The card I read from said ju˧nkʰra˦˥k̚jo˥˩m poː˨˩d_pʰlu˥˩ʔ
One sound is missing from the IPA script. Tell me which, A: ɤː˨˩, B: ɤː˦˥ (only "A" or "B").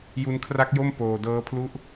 B